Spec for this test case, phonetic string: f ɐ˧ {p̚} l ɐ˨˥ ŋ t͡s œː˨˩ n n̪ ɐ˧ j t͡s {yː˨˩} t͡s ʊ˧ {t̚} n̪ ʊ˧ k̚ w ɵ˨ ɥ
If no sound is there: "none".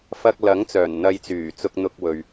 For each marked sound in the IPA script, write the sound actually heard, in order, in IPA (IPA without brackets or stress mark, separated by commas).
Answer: k̚, yː˨˩, k̚